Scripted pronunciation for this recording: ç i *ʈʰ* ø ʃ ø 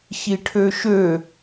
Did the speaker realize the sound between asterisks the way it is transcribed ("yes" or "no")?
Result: yes